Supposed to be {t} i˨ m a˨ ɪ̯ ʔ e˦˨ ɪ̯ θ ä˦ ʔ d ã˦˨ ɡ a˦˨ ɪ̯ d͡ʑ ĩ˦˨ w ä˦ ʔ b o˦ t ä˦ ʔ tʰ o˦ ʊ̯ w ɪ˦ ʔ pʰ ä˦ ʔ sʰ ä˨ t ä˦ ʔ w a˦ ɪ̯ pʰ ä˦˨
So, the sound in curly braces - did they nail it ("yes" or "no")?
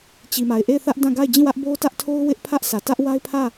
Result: no